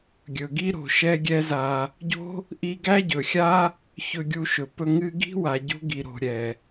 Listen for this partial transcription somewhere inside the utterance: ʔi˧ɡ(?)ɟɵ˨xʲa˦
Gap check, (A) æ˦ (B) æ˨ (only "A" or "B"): A